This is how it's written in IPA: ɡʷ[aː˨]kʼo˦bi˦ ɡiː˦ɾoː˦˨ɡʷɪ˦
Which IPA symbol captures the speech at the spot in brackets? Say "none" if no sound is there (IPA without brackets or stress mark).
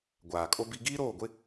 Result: aː˨